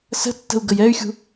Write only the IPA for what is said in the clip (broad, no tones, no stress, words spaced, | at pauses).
sə̤tːə̤u̯ ɡəjɛy̯xʲṳ